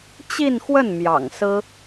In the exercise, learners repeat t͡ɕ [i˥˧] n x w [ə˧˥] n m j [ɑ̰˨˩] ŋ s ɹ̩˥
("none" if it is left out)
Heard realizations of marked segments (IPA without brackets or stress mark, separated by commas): i˥˧, ə˥˩, ɑ̰˨˩